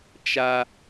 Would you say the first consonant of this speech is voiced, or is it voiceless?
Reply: voiceless